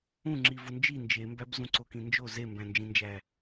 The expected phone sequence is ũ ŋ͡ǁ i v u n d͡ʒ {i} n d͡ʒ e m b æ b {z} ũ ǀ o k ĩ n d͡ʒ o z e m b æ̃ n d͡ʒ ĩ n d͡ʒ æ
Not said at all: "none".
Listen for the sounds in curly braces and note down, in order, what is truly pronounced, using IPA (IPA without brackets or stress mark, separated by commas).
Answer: i, z